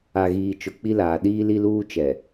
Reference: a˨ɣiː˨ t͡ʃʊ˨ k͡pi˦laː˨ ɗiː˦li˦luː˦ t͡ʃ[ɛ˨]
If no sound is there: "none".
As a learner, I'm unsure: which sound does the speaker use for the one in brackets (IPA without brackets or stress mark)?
ɛ˨